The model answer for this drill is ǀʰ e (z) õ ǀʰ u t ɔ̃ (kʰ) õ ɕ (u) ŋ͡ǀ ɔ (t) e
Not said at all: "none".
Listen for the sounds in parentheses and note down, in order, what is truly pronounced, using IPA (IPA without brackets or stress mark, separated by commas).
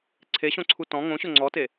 ɕ, ŋ, ʊ, t